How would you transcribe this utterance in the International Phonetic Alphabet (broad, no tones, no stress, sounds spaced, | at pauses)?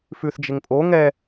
f ʉ θ d͡ʒ ɪ ŋ pʼ o ŋ ɛ